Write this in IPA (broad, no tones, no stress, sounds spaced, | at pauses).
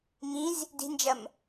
ŋ ĩ z | d i̤ n d͡ʒ ɐ m